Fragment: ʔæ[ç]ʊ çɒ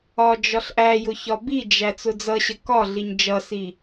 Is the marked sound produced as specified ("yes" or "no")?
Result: no